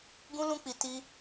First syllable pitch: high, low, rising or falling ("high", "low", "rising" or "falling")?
high